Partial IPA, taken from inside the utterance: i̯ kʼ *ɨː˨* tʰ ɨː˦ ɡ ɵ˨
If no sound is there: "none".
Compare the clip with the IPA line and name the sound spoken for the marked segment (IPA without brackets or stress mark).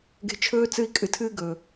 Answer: ɨ˨